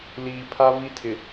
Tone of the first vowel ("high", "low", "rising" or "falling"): low